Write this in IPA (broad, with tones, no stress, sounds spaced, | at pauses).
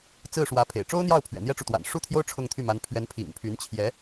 t͡s ɹ̩˥˩ ʂ w ä˧˥ pʰ ḛ˨˩ ɪ̯ ʈ͡ʂ o˥ ʊ̯ n̪ j ɑ˥˩ ʊ̯ pʰ ɥ ɛ̰˨˩ n̪ j ɛ˥ ʈ͡ʂ u˨ t̪ w a̰˨˩ n ʂ u˥˩ t̪ʰ j o˥ ʊ̯ ʈ͡ʂʰ ʊ˥˧ ŋ t̪ʰ y˥˩ m a˧˥ n pʰ ɥ ɛ˧˥ n pʰ ḭ˨˩ ŋ pʰ y˧˥ n t͡ɕʰ j ɛ˧˥